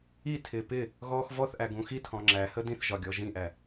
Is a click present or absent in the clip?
present